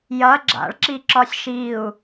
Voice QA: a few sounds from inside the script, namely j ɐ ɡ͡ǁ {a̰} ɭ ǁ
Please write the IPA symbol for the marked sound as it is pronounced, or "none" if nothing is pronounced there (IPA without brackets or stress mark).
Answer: a̰